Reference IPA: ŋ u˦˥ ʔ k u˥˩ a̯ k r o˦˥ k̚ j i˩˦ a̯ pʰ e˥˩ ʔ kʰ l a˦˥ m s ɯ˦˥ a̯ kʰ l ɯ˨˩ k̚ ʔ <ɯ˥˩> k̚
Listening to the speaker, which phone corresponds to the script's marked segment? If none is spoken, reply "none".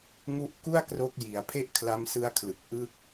ɯ˥˩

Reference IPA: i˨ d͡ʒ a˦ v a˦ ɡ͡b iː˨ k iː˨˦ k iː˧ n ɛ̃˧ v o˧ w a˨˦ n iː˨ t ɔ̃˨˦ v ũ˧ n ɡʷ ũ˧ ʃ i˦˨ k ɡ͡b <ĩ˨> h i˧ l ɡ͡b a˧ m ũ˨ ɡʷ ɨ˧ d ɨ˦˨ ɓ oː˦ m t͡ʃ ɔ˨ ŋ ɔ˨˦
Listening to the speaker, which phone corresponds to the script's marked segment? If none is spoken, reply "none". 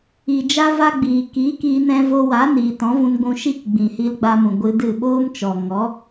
ĩ˨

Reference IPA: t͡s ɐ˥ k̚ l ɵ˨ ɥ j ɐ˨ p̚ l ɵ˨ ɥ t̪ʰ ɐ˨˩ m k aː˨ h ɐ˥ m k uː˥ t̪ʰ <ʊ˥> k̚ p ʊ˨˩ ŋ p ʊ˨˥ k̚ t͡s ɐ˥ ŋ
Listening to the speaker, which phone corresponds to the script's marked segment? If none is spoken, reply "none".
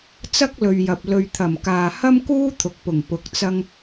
ʊ˨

